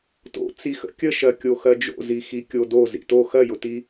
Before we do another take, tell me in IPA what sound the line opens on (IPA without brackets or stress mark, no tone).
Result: t